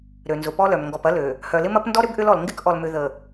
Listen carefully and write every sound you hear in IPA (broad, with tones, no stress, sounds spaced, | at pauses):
ɾ ø˨ n z ʊ˨ p ɔ˦ l œ˨ m ŋ ɡ ɔ˨ p ɐ˦ l ø˨ | h œ˨ l ɪ˦ m ɐ˦ p n d ɔ˦ ɾ ʏ˦ b ʔ ʏ˦ l ɔ˨ l ŋ ɡ ɪ˦ k ʔ ɔ˨ l m ʏ˨ ð ə˨